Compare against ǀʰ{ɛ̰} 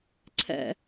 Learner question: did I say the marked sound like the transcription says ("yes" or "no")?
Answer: yes